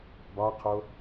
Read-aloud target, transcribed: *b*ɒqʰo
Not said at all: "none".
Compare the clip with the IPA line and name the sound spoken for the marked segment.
b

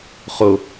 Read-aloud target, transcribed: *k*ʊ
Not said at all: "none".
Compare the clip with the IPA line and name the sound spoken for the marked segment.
χ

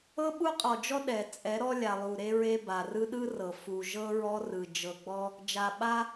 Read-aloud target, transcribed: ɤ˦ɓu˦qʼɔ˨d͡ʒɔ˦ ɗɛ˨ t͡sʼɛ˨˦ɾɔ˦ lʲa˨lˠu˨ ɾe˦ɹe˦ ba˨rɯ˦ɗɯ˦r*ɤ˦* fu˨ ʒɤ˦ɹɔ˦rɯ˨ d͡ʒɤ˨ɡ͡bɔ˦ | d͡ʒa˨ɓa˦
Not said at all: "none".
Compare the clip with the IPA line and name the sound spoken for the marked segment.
ɤ˨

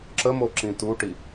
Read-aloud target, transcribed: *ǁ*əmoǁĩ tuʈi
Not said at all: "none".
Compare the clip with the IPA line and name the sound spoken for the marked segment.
ǁ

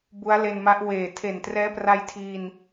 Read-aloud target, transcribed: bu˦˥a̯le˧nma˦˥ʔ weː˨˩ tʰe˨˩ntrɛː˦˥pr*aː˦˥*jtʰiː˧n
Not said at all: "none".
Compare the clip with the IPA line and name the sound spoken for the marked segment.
a˦˥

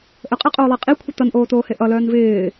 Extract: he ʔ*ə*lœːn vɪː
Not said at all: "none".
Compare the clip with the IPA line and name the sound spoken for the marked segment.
ʌ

